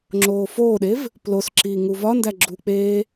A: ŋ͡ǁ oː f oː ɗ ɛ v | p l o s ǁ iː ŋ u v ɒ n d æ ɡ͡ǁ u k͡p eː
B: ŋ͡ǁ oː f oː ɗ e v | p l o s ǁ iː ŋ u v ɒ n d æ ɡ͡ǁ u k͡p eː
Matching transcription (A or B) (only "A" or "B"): B